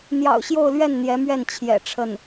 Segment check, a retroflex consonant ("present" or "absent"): present